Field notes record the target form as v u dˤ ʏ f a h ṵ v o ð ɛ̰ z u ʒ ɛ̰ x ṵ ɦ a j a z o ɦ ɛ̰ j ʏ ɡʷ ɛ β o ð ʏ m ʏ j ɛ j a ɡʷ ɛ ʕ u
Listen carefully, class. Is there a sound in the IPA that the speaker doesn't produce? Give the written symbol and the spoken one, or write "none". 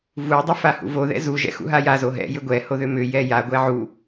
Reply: β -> h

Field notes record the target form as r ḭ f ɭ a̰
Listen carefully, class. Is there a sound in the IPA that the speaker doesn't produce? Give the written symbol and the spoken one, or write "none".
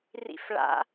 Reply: none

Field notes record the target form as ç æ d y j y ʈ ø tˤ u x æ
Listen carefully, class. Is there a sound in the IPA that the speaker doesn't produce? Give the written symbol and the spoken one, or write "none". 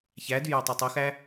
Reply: ʈ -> tˤ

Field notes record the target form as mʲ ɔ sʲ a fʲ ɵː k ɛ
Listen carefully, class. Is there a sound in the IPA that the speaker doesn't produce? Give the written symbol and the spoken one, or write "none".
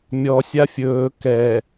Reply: none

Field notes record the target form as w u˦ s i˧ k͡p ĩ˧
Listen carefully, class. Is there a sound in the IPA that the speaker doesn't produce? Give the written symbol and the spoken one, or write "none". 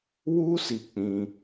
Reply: none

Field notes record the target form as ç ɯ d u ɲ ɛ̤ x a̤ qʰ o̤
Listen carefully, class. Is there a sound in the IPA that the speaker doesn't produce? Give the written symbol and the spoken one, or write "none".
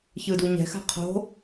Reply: none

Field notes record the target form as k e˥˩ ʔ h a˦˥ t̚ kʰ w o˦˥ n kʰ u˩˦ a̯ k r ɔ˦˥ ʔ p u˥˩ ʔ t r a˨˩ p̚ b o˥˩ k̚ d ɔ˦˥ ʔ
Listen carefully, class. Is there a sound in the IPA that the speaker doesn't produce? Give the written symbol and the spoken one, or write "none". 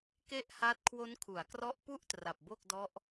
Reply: none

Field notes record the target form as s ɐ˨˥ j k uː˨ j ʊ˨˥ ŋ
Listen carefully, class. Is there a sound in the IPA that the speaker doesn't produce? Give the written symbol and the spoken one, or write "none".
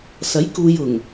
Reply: ʊ˨˥ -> ʊ˨˩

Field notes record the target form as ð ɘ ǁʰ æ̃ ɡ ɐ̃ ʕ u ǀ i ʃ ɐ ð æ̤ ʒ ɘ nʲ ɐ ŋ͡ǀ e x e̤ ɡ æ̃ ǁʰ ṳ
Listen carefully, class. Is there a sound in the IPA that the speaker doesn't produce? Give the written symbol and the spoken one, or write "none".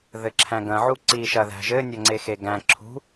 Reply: e̤ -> e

